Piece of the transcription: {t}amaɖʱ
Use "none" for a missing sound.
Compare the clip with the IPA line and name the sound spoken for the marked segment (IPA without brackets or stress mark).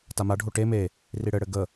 t